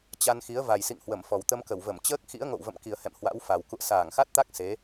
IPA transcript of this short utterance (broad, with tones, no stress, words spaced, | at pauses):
t͡ɕa˧n xi˨˦ə̯va˨˩jsḭ˧˨ŋ hwə˧˩m fɔ˨˩wt̪ə˧m kə˧˩wvə˧˩mt͡ɕəː˦˥k̚ xḭ˧˥ə̯ŋo̰˧˨w və̰˧˨m ki˨˩ə̯hɛ̰˧˨m hwa̰˧˥wfa˨˩w kṵ˧˨ə̯saː˧˩ŋxa˦˥t̚t̪a˦˥k̚ se˨˦